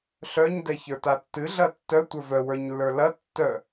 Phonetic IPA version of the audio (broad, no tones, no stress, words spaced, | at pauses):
ɬœɲ dɛçə˞tatːɨ ɮɐtːœ tʷə˞vœ wə˞ɲlːə˞lɐ tːœ